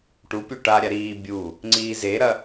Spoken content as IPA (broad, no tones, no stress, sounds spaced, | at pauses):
ʈ u pʲ o ʈ a ɾʲ a ɾ iː bʲ u | ŋ͡ǀ iː z e ɾ ɐ